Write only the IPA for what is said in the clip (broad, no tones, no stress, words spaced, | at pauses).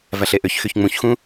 væɬeʔøçxyç ŋ͡mũçxũ